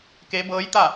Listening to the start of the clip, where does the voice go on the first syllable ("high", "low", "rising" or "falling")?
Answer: rising